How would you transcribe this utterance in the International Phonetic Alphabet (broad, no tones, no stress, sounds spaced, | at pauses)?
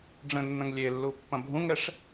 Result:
ɖ͡ʐ ə̃ nː ɐ̃ ŋ lʲ e lː u pː ɐ̃ bʱ ũ ŋ ɾ ɛ ʂ